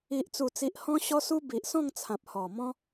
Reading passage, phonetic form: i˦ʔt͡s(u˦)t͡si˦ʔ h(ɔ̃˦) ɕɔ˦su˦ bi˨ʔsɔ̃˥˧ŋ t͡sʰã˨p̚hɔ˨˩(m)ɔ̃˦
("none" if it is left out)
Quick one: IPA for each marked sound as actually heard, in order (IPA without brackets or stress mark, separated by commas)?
u˥˧, ɔ̃˦, m